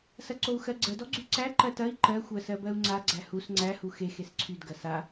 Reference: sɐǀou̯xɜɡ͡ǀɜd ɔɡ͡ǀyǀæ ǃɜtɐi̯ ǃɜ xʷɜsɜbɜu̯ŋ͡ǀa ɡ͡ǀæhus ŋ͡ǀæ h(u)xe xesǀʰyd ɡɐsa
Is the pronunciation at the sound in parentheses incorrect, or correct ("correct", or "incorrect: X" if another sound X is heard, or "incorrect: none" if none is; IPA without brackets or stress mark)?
correct